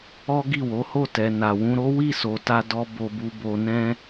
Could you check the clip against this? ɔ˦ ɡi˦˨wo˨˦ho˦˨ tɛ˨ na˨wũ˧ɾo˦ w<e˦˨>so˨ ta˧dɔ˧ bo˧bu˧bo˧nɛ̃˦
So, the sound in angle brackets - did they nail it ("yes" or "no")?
no